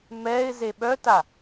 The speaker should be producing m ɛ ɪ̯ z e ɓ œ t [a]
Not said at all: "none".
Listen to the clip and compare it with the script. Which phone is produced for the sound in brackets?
a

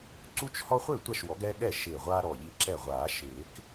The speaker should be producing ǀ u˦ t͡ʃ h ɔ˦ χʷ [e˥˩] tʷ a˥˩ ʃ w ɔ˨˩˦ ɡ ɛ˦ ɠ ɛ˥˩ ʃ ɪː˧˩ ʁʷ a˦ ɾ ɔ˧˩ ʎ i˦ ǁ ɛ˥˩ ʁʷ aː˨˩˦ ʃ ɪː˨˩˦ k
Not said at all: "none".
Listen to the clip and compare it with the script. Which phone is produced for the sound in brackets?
e˥˩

